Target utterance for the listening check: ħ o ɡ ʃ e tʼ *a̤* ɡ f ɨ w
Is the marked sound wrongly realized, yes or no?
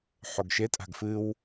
no